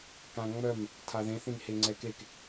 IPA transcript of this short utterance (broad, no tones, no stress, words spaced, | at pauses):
kãŋ͡mœm | tʰaðẽ θĩnheŋ͡ǀɛkek